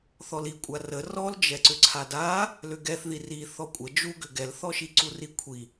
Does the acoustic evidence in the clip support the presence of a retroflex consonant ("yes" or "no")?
no